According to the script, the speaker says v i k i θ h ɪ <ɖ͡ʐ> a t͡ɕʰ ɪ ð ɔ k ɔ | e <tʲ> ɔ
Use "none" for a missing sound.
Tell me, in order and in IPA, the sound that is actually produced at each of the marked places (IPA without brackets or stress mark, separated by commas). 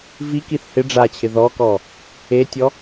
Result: ɖ͡ʐ, tʲ